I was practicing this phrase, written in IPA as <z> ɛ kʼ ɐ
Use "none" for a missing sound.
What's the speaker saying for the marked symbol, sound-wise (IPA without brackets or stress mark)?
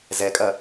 z